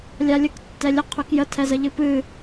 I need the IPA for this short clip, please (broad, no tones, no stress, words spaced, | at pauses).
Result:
lʲalʲək tːɛlʲəqʰʉk jətʰɛzə ʎɨpɨ